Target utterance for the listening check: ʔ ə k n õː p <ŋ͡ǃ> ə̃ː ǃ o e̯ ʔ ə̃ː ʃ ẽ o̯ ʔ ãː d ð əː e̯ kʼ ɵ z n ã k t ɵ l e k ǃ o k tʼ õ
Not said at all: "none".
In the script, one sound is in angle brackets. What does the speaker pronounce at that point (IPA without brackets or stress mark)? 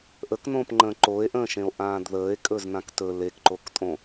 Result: ŋ͡ǃ